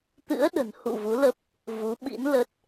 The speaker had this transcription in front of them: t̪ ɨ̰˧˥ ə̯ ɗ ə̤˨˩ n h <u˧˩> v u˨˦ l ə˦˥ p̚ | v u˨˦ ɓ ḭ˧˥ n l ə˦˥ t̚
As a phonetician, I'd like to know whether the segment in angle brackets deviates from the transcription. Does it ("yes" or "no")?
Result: yes